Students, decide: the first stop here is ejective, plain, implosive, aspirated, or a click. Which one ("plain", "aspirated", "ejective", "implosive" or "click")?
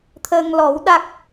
aspirated